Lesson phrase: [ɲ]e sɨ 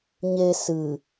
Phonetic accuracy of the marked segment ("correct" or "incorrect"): correct